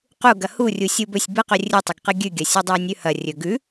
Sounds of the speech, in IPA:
q u ɡ ɐ h u rʲ u sʲ u b ɵ sʲ b ɨ q ɵ rʲ ɨ tˤ ɐ ɡ q ɨ ɡʲ ʉ ɡʲ ɐ sʲ ɨ dˤ ɐ i̯ nʲ ʉ h ɐ rʲ ɵ ɡ ʉ

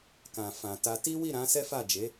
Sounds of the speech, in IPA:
k ã˨ f ã˨ t a˧ t i˦ w i˦˨ ɾ ã˨˦ s ɛ˦ f a˦˨ d͡ʒ e˨˦

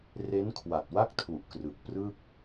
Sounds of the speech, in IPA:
r e˦˥ n kʰ w a˨˩ t̚ w a˥˩ k̚ tʰ u˨˩ ʔ k r ɯ˨˩ k̚ p r ɯ˥˩ k̚

